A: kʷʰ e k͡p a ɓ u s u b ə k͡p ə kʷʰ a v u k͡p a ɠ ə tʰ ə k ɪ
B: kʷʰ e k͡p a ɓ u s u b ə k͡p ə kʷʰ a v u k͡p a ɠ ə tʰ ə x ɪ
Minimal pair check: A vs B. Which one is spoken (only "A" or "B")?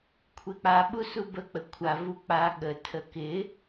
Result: A